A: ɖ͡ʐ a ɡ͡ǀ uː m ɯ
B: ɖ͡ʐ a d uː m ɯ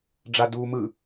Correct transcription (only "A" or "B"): B